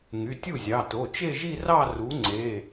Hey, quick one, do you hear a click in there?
yes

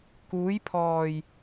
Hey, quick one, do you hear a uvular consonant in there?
no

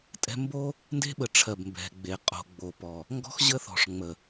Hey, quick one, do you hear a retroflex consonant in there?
yes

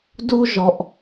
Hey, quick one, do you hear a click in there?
no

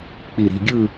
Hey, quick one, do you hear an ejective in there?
no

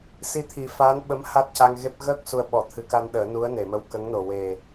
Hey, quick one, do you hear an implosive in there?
yes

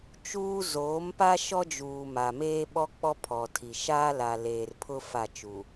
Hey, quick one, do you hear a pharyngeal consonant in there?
no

